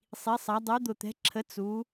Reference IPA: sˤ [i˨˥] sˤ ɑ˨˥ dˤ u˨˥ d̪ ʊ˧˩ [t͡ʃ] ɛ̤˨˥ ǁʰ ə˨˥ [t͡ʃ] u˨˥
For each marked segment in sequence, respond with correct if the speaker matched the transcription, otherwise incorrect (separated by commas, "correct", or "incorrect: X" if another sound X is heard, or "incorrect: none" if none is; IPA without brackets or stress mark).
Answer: correct, incorrect: t̪, incorrect: t͡s